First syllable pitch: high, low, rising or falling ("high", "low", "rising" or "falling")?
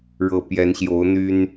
low